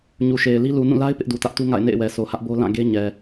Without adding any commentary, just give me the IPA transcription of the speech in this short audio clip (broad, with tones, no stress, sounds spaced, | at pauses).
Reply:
ɲ u˨ ʃ e˨ ɪ̯ l i˦ l u˨ n ũ˦˨ l a˦ ɪ̯ p ɪ˦ ʔ d u˨ t ä˦ ʔ t u˦ ŋ a̰˦˨ ɪ̯ n ḛ˦˨ ɪ̯ w ɛ˨ s o˨ h ä˦ ʔ b o˦ l ã˦˨ ɡ e˦ ɲ ɛ˨